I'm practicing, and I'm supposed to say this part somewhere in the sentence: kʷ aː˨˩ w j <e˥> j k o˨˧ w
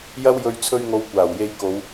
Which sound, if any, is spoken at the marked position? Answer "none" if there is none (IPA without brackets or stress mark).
e˧